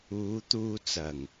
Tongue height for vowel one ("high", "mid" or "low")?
high